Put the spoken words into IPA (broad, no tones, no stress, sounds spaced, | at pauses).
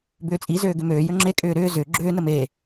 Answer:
b ʏː t͡sʼ i z øː ɡ ʏ m øː j ø ŋ͡ǁ e kʼ ʏː ɾ ʏː z ʏ ɡ͡ǁ ʏː n ə m e